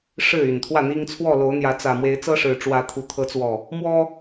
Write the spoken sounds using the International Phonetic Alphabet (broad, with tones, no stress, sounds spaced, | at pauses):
ʂ ɻ̩˥˨ y˨˩ n t̪ʰ w ä˥˨ n̪ i˦ ŋ t͡sʰ w ɔ˥˨ l o˨˦ ʊ̯ n̪ j ä˨˦ t͡s ä˨˩ m w e˨˦ ɪ̯ t͡s ɤ˦ ʂ ɻ̩˨˩ ʈ͡ʂ w ä˨˦ t̪ʰ u˨˩ t̪ʰ ɤ˨˦ t͡s w ɔ˨˩ | m w ɔ˦